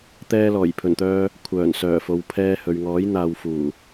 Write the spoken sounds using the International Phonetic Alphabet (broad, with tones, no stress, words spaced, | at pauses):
t̪ɛː˧lɔː˨˩jpʰɵ˨˩nt̪œː˧ | kʷʰœː˨˩n sœː˨˩fo˨wpʰɛː˧hɵ˨ɥ ŋɔː˨˥j n̪aː˧w fuː˨˩